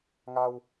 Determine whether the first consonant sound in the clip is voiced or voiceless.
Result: voiced